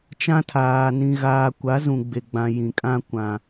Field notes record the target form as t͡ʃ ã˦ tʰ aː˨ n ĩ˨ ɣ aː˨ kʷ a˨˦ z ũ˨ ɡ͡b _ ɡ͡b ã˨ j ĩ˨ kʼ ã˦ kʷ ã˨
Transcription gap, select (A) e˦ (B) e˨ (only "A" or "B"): B